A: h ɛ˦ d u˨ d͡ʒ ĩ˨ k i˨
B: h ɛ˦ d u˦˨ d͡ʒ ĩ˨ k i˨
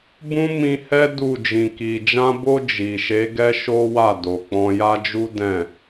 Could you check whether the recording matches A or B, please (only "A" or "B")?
B